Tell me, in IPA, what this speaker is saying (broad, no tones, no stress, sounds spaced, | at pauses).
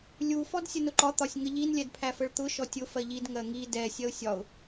lʲ u f ɔ d sʲ ə n ʊ ǃ ɒ t̪ ɒ sʲ ŋ ə ʎ i n lʲ ɛ d pʰ æ f ə ɭ t̪ ʊ ʃ ɔ tʲ ʊ f ɜ ʎ i d ŋ ɜ ŋ i d ɛ sʲ ɜ ʊ̯ sʲ ɒ ʊ̯